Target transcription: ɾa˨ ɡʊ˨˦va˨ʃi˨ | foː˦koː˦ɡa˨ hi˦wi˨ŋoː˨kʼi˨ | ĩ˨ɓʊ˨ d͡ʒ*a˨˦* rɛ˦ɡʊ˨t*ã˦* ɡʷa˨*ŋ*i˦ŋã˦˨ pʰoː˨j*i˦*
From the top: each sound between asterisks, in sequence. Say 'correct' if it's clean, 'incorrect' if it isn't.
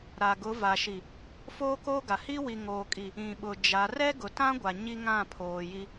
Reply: correct, correct, incorrect: ɲ, correct

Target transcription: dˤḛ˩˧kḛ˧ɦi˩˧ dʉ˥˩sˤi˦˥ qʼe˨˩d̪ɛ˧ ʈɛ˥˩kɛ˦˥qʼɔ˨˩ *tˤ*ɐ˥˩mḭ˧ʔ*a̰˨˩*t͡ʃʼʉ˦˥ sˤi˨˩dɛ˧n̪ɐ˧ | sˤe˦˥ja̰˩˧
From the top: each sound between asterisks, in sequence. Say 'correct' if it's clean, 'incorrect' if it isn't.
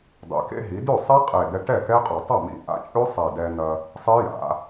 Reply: correct, incorrect: a̰˦˥

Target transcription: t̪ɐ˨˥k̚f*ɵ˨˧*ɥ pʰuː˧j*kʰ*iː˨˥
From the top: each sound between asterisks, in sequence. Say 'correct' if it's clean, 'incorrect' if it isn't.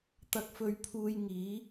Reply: correct, incorrect: ŋ

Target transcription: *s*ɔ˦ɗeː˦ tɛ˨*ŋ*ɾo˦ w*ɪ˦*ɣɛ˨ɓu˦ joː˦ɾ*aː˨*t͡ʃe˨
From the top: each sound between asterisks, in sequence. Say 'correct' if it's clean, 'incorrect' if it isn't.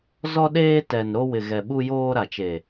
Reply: incorrect: z, incorrect: n, incorrect: ɪ˨, incorrect: a˨

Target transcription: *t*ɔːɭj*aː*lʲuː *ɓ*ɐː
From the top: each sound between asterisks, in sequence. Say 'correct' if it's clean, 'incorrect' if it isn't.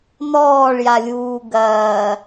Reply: incorrect: n, incorrect: a, incorrect: ɡ

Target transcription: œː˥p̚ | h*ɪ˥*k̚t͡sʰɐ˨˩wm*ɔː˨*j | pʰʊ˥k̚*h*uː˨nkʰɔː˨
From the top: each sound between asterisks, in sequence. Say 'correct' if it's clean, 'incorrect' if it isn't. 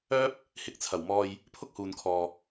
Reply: incorrect: ɪ˨˥, correct, correct

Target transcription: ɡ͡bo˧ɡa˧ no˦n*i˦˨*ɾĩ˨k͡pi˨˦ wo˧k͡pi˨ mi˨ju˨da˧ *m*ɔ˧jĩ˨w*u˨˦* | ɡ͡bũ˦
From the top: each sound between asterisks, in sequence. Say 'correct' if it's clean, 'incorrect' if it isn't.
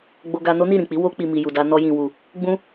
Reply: correct, incorrect: n, incorrect: u˨

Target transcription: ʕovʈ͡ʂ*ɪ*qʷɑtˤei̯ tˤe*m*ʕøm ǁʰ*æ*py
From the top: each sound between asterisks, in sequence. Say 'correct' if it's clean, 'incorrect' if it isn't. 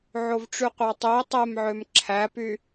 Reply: incorrect: y, correct, correct

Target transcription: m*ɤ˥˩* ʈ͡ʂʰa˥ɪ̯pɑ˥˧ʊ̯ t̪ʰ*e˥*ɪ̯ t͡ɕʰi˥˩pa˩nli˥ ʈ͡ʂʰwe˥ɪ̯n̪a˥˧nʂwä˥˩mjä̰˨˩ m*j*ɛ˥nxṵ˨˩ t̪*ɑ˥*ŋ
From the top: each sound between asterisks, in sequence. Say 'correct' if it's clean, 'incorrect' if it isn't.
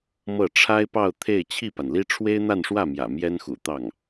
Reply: correct, incorrect: e˥˧, correct, incorrect: ɑ˥˩

